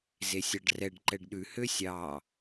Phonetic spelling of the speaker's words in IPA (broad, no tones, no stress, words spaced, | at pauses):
zesʲɑɖrɛɖ ǃɛɖɗʉ høsʲɑ